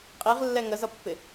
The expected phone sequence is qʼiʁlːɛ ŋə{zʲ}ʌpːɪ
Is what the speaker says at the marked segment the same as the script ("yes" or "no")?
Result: no